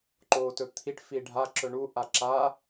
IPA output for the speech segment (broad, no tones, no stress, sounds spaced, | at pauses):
ǃ oː t ɵ t̪ʰ i ʈ f i ɖʱ a ǁ ɵ ɳ u ʔ a ǁ a